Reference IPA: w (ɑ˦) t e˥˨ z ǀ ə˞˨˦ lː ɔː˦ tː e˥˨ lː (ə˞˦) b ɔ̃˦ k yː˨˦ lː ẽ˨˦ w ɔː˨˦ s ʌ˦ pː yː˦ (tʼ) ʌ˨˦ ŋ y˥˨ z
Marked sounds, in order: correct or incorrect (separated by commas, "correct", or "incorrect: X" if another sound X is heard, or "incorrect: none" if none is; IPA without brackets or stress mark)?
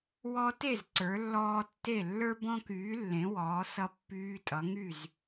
incorrect: ɔ˦, correct, correct